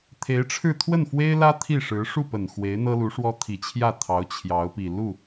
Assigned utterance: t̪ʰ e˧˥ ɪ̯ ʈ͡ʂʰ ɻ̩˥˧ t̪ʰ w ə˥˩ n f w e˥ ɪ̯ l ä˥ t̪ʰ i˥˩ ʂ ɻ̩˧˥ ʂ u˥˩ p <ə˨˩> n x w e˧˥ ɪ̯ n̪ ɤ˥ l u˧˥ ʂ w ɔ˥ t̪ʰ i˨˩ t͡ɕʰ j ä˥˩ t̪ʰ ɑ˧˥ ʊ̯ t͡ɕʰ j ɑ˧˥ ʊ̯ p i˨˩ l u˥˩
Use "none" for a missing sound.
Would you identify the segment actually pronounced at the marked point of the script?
ə˨˩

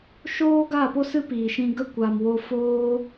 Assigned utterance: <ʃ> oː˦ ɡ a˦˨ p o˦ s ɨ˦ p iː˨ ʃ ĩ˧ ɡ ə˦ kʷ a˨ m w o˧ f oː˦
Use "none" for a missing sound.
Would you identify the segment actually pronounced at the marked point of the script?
ʃ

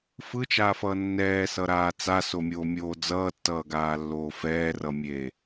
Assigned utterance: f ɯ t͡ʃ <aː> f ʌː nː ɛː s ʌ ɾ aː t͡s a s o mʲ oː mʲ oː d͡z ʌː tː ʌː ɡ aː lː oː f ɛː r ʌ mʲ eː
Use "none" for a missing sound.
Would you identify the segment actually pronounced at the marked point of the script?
aː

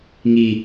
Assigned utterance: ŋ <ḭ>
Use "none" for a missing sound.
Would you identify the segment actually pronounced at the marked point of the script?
i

